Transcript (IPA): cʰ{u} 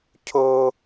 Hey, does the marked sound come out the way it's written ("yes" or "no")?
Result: no